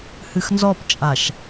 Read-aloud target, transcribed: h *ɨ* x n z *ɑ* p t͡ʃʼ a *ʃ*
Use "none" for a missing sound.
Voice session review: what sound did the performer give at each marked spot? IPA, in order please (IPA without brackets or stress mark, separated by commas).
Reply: ɨ, ɔ, ʃ